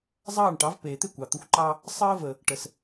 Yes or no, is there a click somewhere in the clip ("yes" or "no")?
yes